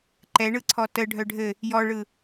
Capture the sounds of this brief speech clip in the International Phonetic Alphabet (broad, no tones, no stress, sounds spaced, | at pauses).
ǃ ɛ ɳ ɯ ǀʰ ɔ t ə ɖʱ œ ɖʱ ɘ | j ɔ ɭ ɯ